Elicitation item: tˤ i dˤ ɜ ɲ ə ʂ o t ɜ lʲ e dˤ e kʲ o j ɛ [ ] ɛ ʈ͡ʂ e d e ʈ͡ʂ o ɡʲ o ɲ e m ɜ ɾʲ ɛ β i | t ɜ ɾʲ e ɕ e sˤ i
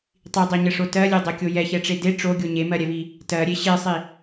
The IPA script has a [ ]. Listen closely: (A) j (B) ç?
B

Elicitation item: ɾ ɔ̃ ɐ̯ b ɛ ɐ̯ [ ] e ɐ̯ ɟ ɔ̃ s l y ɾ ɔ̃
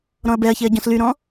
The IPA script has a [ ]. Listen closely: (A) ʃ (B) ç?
B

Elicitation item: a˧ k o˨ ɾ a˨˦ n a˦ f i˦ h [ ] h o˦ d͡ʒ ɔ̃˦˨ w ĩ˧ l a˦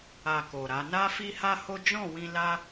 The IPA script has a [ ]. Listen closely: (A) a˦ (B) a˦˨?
A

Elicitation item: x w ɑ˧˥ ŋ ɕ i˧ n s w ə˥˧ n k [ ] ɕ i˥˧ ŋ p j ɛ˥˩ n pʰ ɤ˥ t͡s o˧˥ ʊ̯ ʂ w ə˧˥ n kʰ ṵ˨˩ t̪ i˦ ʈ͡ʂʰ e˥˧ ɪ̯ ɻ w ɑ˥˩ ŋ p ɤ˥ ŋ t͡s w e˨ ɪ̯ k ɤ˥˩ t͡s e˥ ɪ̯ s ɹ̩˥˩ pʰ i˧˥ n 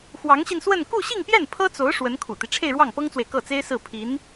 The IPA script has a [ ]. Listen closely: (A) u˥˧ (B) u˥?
A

